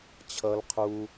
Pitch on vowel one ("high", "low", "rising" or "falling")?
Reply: low